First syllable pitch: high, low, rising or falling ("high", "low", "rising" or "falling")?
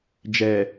low